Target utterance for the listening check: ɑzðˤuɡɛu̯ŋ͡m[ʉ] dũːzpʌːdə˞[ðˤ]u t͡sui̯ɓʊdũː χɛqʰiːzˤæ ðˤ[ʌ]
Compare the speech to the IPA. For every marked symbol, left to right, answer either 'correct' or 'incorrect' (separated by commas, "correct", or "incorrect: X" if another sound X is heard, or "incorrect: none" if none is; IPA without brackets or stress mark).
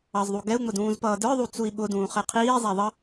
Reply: incorrect: ʊ, correct, correct